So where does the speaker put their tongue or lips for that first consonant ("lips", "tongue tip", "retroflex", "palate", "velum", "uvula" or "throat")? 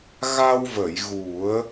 velum